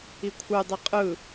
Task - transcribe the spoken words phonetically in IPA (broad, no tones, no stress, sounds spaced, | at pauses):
i kʷʰ ɯ dˤ i qʼ ɯ